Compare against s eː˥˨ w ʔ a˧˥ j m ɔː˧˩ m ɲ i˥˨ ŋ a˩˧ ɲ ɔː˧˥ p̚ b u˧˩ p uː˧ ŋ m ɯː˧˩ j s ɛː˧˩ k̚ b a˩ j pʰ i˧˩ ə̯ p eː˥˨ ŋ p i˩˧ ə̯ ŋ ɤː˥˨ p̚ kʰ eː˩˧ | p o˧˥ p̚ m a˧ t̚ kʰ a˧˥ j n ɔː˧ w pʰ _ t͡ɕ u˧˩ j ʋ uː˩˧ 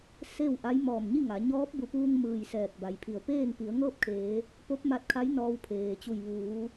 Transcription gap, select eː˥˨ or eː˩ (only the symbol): eː˩